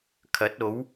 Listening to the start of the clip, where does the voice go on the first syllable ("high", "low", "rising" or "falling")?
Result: rising